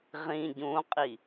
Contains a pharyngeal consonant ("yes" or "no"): no